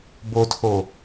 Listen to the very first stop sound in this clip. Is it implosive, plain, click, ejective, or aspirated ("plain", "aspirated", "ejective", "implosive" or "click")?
plain